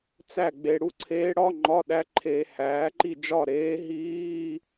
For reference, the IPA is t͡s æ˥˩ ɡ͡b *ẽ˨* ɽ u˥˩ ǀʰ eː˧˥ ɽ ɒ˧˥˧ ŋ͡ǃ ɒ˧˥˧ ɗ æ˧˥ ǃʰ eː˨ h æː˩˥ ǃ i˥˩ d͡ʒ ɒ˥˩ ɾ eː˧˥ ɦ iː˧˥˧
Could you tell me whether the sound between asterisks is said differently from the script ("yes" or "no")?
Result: yes